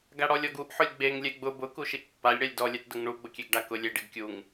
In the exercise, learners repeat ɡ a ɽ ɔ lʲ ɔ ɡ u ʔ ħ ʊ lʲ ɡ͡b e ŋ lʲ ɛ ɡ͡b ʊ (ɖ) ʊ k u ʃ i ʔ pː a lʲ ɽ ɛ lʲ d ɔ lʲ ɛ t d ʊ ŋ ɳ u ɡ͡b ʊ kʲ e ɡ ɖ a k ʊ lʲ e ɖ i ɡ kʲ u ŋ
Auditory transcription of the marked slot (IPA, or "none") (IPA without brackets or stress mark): b